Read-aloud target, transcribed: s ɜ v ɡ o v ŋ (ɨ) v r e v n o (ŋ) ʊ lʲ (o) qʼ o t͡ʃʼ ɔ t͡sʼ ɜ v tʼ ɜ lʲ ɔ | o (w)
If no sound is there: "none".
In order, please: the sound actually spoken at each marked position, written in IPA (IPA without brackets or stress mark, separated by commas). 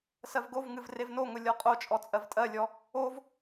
ɨ, ŋ, ɔ, v